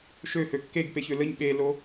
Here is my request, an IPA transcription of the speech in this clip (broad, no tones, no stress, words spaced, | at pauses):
ʃøhø kːeɡpeçø ləɲ ɓelo